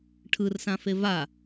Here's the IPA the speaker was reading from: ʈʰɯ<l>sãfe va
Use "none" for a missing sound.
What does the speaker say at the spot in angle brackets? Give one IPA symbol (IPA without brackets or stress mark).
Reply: r